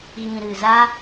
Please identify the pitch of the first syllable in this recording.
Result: low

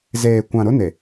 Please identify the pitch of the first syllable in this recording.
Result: low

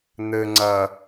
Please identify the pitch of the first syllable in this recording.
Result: low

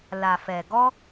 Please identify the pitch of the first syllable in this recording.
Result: low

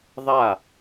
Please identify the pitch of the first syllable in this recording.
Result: falling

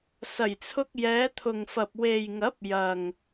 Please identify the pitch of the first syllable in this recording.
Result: low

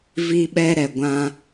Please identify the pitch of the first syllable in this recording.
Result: high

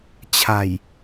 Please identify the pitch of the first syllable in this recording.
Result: low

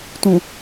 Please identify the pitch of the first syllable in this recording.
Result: low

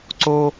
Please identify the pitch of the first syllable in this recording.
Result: high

